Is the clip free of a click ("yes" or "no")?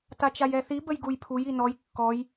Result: yes